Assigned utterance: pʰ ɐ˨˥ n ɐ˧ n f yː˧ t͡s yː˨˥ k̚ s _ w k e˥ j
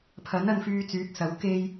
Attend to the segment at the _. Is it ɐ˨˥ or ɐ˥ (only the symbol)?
ɐ˨˥